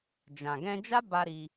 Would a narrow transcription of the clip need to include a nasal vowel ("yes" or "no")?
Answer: yes